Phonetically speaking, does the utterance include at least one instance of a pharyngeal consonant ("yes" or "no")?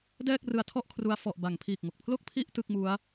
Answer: no